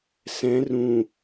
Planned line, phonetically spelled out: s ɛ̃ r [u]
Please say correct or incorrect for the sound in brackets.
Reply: incorrect